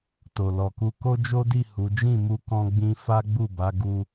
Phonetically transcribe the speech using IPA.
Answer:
to˨ lɔ˨ku˧ ko˦d͡ʒo˦di˦˨ hu˨˦ d͡ʒĩ˦˨mu˧ kɔ̃˦ɡ͡bĩ˦ fa˦ɡ͡bu˦˨ba˨˦ ɡu˧

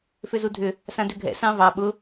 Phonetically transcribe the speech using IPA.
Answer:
fʏzudʱʏ | sãdʏɡʱɛ̰ sɑ̃vɑ ɓʊ

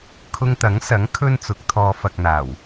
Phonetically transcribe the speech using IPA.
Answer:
kʰʊ˧ŋt̪ɐ˨˥ŋsɐ˨˥ŋ kʰɵ˥nt͡sʊ˨˥k̚t̪ʰɔː˧ fɐ˨k̚n̪aː˨˩w

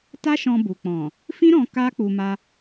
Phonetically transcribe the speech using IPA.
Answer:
ta˦ʃɔ̃˧bu˨ k͡pɔ̃˨ | fĩ˦ɾɔ̃˧ ka˦k͡pu˧ma˧

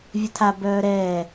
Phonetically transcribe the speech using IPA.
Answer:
vʲɵtʰa bœːɾɛː

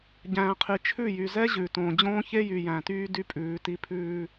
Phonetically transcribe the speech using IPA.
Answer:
ɟæ̃ː˨qʰi˨t͡ʃʰʉ˦˨ jy˨zɛ˦ ʑʉ˨ tõː˨d͡ʑõː˦çe˦jy˨ jæ̃˨tyː˦ dy˦pʼʉː˨˦ti˦ pʰʉː˦

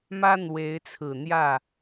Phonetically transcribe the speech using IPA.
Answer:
mä˥ n̪we˧˥ɪ̯t͡sʰɹ̩˨˩n̪jä˥˩

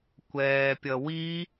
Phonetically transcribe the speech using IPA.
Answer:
kʷɛːpʲʌwi

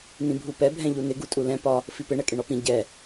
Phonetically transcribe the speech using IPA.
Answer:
nĩbʱupɛ bʱɛ̃ʎunɪ ɡutʼulɛ̃ pɒ | fipɪ ɳɛkʼɪɳɒpĩ ɟɛ

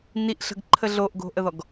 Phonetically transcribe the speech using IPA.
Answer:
niʔɬə̤ɡǃʰə ɮoʔɡo̤ʔəðɔɡ

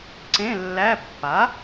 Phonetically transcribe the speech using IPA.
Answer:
ǀẽ˧˥˧ lːæ˧˥˧ pːa˩˥

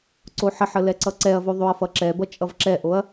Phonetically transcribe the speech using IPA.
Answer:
ǀoħəħə lɛǀʌǀɛɐ̯vo ðˤoɐ̯fʌǁɛbʌ t͡ʃʼʌvǁɛʔoɐ̯

